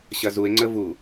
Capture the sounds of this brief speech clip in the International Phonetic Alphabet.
ɕɐzue̯ŋ͡ǀə vu

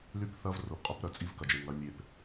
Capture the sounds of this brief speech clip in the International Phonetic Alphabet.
ly˦p θɐ˦vrʊ˨pqʼʊ˦p ɾœ˦˨t͡sʼi˦vkɐ˨d͡ʒe˨ ŋɐ˨˦ mʲe˨p

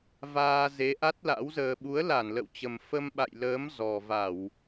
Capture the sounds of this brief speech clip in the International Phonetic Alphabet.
vaː˧ ze˨˦ʔa˦˥t̚la̰˧˥w zəː˨˩ɓu˨˦ə̯ la˧˩nlə̰˧˨wt͡ɕə˨˩m fə˧mɓa̰˧˨jləː˨˦m zɔ˨˩va˧˩˨w

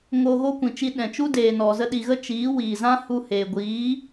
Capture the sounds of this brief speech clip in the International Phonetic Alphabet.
ŋo˧ɣo˦kʷĩ˨t͡ʃi˧ ɗɛ̃˨t͡ʃu˦ deː˨nɔ˨ zə˧ɗi˨ɣə˦ t͡ʃiː˨˦ wiː˨ zã˦hu˧ heː˨ ɡʷiː˨˦

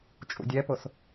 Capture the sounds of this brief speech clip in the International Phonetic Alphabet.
t͡ʃʼṵdʲɛpʊs

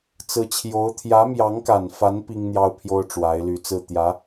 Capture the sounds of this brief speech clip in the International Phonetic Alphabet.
t͡sɹ̩˧˥t͡ɕʰjo˧˥ʊ̯ t̪ʰjä˧˥mjɑ˧˥ŋka˨˩nfa˧˥n pi˥ŋn̪jɑ˥ʊ̯pʰjo˥ʊ̯ ʈ͡ʂwa˧˥ɪ̯ly˧˥t͡sɹ̩˥˩ t̪jä˧˥

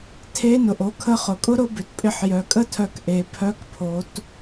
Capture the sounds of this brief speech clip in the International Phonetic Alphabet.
tʰe˧˥nʊ˩ʔ o˩˧kʰə˧˥χʊ˩kʼʊ˥ ɾʊ˧˥bʏ˩tpʼɪ˧ħ jœ˩˧kʼə˥tʰœ˧kʔe˩˧ pʰœ˧˥kpʰo˩˧t

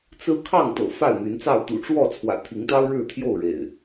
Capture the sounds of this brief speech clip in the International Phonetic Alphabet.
t͡sɹ̩˦ kʰɑ˥˨ŋt̪ɤ̰˨˩ fa˥˨ɪ̯n̪y˨˦nt͡sɑ˥˨ʊ̯ t̪ṵ˨˩ʈ͡ʂwɔ˥˨ t͡sʰwä̰˨˩t̪ʰi˨˦ŋt̪ɑ˦ʊ̯ ɻɻ̩˥˨t̪ʰjo˥˨ʊ̯ɻḛ˨˩ɪ̯

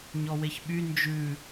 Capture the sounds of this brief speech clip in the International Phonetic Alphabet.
ɲɔweçɓy nd͡ʒʉ

